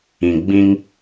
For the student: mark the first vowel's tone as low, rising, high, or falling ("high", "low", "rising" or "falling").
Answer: low